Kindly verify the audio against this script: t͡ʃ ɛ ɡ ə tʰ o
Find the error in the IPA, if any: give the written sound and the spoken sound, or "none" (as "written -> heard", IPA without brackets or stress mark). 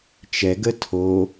none